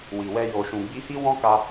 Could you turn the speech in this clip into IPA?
wi˨wɛ˧ jo˨ʃũ˨ ɡ͡bi˧hi˦wɔ̃˦ka˧

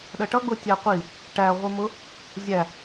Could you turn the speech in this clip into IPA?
ɗɜʈʌɡ͡bʊ tʲæqʷi | ʈæʁʷi mʊ | zʲæ

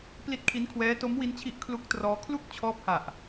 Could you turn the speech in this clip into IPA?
pli˦˥t̚kʰi˦˥nkʰwɛː˦˥ to˦˥mwi˦˥nt͡ɕʰi˦˥ʔ kʰlu˦˥k̚trɔː˦˥ kʰlu˥˩k̚ t͡ɕʰɔː˦˥p̚ha˨˩ʔ

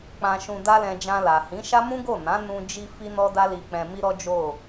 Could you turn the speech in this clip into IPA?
k͡pã˧ʃũ˧da˦lɛ̃˧ d͡ʒã˧ la˨hĩ˨˦ʃa˦ mũ˦ɡo˦˨ nã˨˦nũ˧ d͡ʒi˦ fi˦nɔ˦da˦ li˧k͡pɛ̃˧mi˦ɾɔ˦ d͡ʒo˦˨

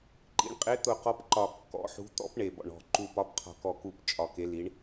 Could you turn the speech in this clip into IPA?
ǃḭ˨˦ɳqʼe˨˦t̪ʊ˨˩ qɔ˨˦pǃɒ˨˩ kːɔ̰˨˦ħṳ˨˦ t̪ɔ̰˨˦p ɳe˨˩bɔ̰˨˩ɳɔ̤˨˩ ǃu˨˩pɒ˨˦pqʰɔ̤˨˩ kɔ˨˩ku˨˩p t͡ʃʼɒ˨˩ke˨˦li˨˦ɳ

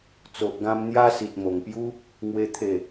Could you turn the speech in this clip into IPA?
t͡so˨ʔɡã˧m n̪ja˦ si˨t̚mo˨˩ŋpju˦ | ŋwe˦t̪ʰe˥˧

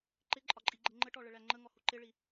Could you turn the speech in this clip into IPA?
ǃɪǃʼɒǃʼiɡ͡ǃɪ ŋ͡ǃəʈɔɭəɭæ ŋ͡ǃəŋɔhu ǃɪɭi

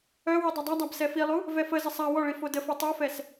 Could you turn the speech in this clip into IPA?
œ widˤɛdˤadˤab sɛfilˠu | vɛfəzə sˤa wɔɭi fodəfe tˤofɛs

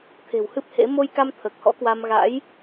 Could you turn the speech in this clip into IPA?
t̪ʰe̤˨˩whɨ˦˥p̚hḛ˧˥ mo˧jka˧m t̪ʰəː˨˩k̚hɔ̰˧˥kwa˧m ɣa̰˧˥j

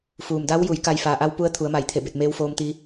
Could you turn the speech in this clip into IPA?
fuː˩mda˧˥wju˩˧j ka˧jfaː˩ʔa˧˥wpu˧˥ə̯ t̪ʰu˩˧ə̯ma˧˩jt̪ʰe˧˩be˧˩t̚ meː˧˥wfoː˧mt̪i˧

